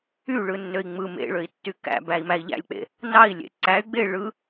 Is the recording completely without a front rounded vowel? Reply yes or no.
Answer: no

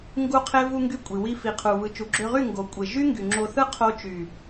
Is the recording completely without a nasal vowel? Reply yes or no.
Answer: yes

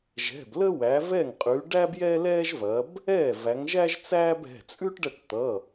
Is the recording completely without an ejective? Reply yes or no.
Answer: no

